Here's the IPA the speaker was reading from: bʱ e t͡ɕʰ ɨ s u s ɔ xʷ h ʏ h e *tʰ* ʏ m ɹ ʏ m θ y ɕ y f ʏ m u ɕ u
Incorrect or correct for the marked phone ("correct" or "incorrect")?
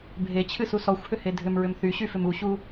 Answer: incorrect